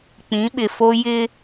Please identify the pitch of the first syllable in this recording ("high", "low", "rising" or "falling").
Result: rising